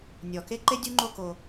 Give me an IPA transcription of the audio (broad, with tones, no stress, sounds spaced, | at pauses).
nʲ ɔ˨ k e˦ ǃ e˦ dʲ u˦ ŋ͡ǃ o˦ k o˦